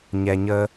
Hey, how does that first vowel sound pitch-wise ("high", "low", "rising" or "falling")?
low